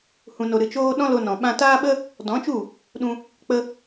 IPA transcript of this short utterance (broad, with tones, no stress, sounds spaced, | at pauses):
h ũ˧ n o˧ ɾ ɨ˧ t͡ʃ oː˦ ɗ ɔ̃˦ l o˧ n ɔ̃˨ ɓ ã˧ t aː˦ ɓ ə˦ | d ɔ̃˨˦ t͡ʃ u˦˨ | ɗ ũ˧ | k͡p ə˧